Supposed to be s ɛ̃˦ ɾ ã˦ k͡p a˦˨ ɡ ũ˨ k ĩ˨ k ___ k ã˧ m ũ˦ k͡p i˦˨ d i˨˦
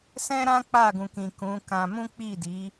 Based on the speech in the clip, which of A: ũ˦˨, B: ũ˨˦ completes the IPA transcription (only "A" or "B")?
B